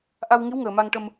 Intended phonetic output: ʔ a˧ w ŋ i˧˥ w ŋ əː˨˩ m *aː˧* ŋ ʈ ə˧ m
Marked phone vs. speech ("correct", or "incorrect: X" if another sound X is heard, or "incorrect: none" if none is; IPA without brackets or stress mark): incorrect: a˧